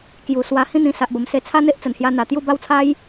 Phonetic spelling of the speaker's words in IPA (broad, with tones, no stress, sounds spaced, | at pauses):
k j u˨˩ s w a˧ h ĩ˥˧ n̪ ĩ˧ s a˨ ʔ b ə˨˩ m s e˧ t͡sʰ a˦ n̪ e˦ ʔ t͡s ə˨˩ n h j a˧ n̪ a˨˩ t̪ j u˥˧ b a˥˧ w t͡sʰ a˦ j